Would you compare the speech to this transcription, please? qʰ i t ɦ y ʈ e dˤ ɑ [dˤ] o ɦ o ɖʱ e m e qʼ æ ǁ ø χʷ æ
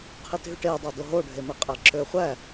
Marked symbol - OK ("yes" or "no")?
no